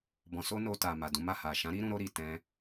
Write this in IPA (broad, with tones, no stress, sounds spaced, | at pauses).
b ɔ̃˧ s o˦ n o˧ t a˨ m a˨ d ũ˨˦ m a˦˨ h a˨ ʃ ã˨˦ ɾ i˦ ɾ ũ˧ ɾ o˧ ɾ i˨ t ɛ̃˧